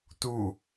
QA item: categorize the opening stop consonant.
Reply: plain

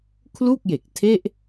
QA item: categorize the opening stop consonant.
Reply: aspirated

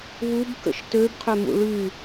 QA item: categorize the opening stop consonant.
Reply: plain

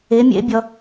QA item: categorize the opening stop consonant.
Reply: plain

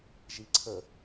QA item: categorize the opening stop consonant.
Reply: click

